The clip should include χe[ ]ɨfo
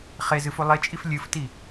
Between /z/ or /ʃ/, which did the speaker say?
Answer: z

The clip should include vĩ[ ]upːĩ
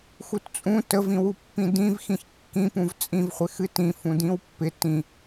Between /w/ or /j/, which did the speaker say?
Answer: w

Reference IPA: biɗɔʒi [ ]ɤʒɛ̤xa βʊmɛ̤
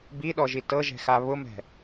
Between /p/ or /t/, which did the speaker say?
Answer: t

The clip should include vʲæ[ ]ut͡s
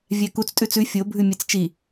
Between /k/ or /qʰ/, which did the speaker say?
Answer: k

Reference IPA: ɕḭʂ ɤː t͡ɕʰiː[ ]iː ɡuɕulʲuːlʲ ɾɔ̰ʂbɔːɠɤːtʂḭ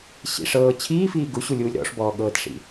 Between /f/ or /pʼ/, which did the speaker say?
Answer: f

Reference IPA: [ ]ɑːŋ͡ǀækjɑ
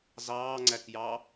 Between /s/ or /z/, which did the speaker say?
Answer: z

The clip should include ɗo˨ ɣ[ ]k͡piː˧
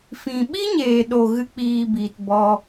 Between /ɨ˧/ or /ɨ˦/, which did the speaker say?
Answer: ɨ˦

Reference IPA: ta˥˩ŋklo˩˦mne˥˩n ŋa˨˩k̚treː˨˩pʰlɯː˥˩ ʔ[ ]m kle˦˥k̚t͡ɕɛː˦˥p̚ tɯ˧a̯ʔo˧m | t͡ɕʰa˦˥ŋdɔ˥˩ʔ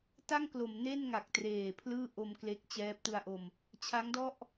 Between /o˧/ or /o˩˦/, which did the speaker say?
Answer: o˧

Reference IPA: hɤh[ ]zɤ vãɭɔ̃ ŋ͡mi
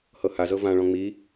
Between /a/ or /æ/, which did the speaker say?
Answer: a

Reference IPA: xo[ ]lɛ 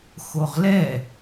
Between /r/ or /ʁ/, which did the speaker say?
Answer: ʁ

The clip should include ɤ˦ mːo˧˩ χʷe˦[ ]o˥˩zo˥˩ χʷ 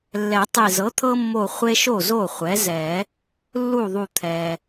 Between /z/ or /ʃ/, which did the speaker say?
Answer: ʃ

